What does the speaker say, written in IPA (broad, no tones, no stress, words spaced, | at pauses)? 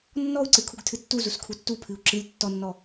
nːɔu̯ǀɨ kʰuɡtʰɨtːuzus kʰutːupʰɨu̯ ǁɨlʲ tːɔnːɔ